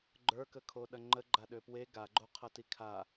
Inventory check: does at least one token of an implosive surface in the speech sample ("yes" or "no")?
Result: yes